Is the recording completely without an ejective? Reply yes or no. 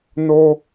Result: yes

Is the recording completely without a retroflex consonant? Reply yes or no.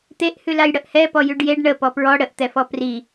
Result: no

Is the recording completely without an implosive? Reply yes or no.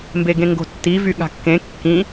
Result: no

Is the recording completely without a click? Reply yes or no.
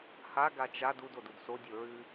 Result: yes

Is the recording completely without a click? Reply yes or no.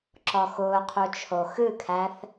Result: no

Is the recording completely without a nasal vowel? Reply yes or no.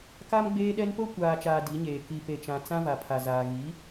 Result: no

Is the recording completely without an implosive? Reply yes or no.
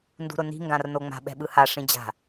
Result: no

